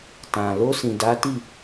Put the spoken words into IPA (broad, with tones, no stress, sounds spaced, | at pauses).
t ã˨ l o˧ s ĩ˨ d a˨˦ t i˦˨